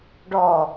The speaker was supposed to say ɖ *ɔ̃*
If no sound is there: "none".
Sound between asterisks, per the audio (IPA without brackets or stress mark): ɔ